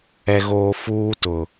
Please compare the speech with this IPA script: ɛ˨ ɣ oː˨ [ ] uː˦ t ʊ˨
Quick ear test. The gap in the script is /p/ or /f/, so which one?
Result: f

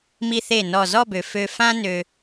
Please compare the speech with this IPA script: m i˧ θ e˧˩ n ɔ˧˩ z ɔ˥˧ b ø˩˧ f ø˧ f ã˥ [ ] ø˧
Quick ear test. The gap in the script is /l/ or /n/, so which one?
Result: n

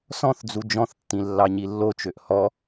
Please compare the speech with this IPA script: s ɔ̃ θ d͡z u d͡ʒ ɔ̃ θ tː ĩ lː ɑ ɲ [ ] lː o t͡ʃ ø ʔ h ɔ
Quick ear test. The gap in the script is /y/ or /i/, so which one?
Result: i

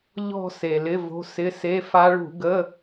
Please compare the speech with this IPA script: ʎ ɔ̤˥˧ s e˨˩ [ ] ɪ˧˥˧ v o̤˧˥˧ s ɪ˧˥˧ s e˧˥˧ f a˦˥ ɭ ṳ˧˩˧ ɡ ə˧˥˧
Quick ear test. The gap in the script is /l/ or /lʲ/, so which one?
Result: l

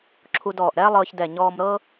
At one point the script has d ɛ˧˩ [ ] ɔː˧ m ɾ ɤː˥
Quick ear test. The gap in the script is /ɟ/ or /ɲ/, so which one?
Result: ɲ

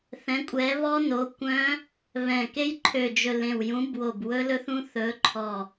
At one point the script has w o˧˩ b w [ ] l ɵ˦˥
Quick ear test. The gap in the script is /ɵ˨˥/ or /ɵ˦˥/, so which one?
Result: ɵ˦˥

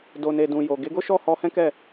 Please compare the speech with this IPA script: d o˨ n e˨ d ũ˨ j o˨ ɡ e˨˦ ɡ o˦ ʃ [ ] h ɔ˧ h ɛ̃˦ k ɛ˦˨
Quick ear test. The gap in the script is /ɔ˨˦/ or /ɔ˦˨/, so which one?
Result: ɔ˦˨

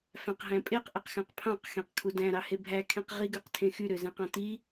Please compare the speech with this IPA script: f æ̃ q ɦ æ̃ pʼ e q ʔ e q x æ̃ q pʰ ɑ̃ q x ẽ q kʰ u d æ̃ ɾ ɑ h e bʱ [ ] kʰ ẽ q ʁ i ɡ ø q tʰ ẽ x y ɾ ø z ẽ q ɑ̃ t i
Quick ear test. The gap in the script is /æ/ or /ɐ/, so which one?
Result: æ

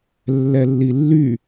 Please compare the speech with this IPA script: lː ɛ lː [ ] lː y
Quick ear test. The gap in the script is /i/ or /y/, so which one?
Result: i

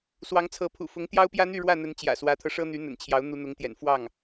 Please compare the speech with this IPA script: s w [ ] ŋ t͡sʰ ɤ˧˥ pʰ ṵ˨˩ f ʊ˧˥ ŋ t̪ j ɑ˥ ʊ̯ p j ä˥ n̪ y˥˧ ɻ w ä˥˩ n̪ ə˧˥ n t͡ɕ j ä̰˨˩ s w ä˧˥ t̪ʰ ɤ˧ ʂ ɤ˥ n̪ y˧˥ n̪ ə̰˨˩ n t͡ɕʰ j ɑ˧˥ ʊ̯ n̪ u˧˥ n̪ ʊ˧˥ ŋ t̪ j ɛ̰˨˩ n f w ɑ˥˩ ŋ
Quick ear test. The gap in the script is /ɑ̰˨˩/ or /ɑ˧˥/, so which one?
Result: ɑ˧˥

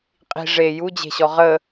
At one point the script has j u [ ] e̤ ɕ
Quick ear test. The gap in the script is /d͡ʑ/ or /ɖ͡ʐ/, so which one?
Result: d͡ʑ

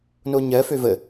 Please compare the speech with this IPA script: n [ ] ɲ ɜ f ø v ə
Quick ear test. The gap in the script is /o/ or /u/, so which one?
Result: o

